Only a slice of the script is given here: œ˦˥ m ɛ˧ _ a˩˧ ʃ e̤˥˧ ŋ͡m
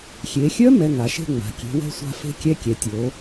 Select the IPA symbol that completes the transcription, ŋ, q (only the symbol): ŋ